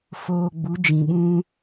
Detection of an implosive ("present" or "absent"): present